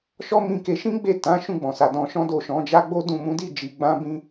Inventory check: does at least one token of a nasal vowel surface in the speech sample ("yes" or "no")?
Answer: yes